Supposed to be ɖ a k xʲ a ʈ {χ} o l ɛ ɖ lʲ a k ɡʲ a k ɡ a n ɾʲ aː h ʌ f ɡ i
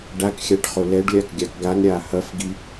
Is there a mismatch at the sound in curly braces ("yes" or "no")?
no